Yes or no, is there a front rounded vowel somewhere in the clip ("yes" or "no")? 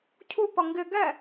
no